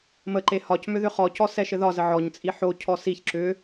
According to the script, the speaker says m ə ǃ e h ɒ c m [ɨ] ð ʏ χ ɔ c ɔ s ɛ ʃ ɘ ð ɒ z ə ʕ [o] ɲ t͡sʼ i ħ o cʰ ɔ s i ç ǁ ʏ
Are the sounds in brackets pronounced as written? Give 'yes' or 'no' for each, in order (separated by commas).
no, no